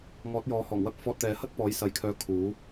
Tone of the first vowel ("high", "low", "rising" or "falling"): rising